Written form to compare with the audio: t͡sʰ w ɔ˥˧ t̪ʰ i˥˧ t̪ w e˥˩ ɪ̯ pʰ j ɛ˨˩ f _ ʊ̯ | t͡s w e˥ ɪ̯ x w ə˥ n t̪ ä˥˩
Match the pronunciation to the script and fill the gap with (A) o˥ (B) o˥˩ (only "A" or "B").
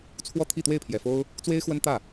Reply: A